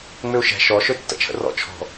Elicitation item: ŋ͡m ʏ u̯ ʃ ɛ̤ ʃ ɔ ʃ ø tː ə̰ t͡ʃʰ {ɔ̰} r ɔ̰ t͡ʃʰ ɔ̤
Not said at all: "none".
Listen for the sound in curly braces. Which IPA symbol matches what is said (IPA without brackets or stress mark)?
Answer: ə̰